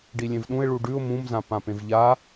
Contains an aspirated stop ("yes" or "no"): no